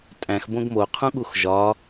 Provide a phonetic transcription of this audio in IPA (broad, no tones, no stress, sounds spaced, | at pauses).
tʼ æ̃ x b õ ɡ m o qʰ ũ ɠ u x ʒ ɒ